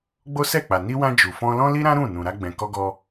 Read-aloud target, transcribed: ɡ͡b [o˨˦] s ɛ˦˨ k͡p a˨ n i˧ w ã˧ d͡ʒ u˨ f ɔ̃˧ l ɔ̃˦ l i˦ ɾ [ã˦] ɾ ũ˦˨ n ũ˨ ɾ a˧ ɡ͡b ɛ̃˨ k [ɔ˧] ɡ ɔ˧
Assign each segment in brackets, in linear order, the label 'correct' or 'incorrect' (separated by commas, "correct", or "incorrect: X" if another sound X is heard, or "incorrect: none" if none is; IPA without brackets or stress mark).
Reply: incorrect: o˦, correct, correct